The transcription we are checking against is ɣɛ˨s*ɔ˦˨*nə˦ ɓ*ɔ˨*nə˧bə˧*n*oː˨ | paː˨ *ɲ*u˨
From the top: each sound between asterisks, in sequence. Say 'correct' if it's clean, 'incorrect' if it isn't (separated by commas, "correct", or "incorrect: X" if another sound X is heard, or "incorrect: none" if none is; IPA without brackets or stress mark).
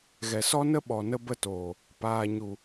incorrect: ɔ˦, correct, incorrect: t, correct